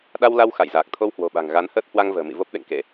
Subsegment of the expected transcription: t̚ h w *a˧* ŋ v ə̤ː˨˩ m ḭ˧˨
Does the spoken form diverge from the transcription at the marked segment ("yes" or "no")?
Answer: no